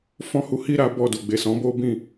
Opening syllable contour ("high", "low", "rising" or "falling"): high